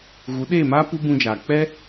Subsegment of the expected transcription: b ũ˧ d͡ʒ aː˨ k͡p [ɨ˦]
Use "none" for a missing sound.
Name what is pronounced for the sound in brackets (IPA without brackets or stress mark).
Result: ɛ˦